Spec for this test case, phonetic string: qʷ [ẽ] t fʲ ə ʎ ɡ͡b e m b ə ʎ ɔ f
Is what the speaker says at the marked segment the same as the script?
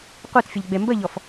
no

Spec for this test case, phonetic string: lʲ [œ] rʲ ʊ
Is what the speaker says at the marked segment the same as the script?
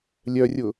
yes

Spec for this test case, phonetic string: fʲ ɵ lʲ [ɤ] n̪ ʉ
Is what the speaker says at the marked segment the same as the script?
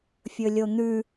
no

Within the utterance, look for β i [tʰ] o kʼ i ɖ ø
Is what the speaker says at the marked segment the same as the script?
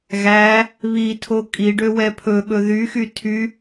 yes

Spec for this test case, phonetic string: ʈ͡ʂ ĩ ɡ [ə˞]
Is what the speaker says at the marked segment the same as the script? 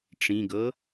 no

